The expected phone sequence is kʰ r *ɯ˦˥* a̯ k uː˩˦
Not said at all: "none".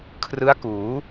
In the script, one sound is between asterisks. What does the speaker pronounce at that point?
ɯ˦˥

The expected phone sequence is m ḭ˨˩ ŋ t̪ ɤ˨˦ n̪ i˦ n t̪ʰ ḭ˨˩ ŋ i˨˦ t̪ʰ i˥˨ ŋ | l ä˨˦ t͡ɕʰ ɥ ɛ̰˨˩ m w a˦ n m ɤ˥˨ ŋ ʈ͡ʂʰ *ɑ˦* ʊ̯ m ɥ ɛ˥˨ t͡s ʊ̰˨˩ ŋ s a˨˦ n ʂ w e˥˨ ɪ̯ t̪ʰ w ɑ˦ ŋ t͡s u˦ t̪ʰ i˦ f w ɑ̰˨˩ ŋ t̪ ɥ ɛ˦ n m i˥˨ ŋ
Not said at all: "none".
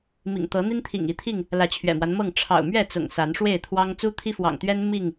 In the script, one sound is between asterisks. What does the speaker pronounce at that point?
ɑ̰˨˩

